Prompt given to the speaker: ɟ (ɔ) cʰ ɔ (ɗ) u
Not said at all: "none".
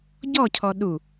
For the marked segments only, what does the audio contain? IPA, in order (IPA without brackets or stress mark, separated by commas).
ɔ, ɗ